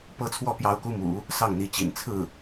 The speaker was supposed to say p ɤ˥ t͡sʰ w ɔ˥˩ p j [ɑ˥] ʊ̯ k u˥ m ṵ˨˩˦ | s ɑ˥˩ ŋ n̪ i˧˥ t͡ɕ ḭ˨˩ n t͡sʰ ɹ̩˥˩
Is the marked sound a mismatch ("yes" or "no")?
no